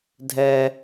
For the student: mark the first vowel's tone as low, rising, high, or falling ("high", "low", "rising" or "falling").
high